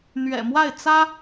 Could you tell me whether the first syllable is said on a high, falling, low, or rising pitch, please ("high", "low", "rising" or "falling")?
low